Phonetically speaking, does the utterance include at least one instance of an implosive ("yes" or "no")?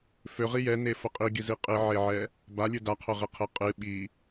yes